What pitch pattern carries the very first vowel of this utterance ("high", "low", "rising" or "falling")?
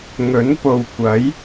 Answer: rising